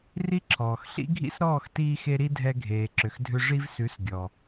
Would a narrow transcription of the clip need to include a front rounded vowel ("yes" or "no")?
yes